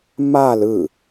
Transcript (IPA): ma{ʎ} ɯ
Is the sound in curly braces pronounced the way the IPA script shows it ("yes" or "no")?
no